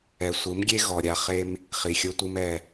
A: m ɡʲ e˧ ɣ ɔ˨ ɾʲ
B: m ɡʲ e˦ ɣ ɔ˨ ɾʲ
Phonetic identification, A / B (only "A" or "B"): B